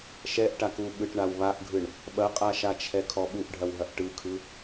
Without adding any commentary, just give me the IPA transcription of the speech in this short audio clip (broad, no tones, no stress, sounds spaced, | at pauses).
ʃ ɛ ʔ ʈ a k u ɓ ɯ ʈ ɳ a w β a ʔ ɡʱ ɯ ɳ | ɓ ɐ qʼ a ʃ a t͡ʃʰ ɛ kʰ ɔ ɓ u ʔ ɖʱ ɐ w ɦ ɐ ʔ ʈ ɯ kʰ ɯ